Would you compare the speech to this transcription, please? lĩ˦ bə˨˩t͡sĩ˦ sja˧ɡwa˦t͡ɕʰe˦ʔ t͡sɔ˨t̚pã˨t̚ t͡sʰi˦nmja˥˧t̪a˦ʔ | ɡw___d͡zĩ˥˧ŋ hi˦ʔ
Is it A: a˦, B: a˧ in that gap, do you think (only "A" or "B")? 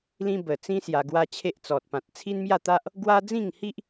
A